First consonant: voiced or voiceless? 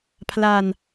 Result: voiceless